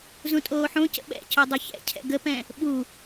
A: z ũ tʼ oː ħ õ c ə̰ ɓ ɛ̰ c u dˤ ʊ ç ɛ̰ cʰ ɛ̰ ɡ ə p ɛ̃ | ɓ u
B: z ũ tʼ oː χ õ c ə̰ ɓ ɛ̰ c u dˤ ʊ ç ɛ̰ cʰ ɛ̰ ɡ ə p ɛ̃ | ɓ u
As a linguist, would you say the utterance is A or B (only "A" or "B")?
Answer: A